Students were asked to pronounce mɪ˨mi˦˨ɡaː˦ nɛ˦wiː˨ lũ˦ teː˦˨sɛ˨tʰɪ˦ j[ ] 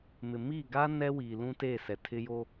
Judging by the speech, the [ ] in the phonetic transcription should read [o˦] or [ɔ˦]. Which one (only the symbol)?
o˦